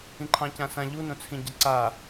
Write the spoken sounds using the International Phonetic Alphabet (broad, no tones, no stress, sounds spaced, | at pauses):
ĩ ǃʰ ɑ̃ c ã s ã ʎ u n õ t͡sʰ ĩ ɟ ɐ ǀ a